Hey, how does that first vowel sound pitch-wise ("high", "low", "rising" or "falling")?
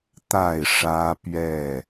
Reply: falling